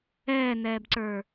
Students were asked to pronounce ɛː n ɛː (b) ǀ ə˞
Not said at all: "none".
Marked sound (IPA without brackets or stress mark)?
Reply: b